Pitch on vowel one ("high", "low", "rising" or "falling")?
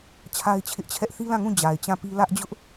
high